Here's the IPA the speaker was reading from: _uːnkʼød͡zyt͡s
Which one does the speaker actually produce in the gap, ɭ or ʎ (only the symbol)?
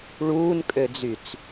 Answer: ɭ